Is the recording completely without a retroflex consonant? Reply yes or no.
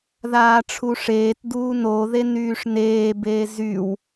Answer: no